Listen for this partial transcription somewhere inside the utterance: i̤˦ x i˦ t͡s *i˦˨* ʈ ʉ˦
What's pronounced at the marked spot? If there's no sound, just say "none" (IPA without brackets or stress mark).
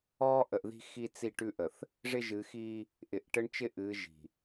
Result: i˦˨